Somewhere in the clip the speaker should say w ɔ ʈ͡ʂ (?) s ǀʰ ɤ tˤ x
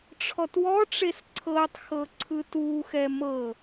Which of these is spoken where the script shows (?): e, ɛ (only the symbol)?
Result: e